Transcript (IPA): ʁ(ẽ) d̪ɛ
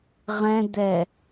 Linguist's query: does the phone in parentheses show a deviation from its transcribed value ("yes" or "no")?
yes